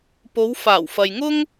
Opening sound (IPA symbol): p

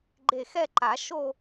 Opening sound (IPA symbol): ɡ͡ǃ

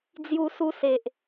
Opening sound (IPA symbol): d͡z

